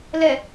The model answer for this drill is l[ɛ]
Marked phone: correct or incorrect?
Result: correct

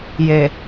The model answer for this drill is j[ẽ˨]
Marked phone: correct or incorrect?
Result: incorrect: e˨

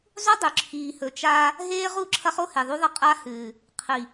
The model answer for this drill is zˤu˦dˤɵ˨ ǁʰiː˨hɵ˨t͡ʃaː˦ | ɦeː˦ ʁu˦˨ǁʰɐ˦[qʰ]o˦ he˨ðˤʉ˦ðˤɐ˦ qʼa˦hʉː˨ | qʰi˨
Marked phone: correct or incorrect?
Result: incorrect: χ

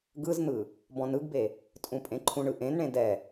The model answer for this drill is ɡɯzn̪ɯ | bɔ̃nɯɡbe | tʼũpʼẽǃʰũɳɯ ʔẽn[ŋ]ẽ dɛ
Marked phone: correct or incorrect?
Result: incorrect: ɳ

